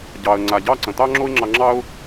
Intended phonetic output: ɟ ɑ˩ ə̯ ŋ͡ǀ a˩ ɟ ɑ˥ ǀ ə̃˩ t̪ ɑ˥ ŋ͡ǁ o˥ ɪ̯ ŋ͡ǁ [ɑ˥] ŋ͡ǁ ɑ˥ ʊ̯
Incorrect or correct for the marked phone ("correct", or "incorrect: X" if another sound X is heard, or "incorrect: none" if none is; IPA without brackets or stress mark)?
incorrect: ɑ˧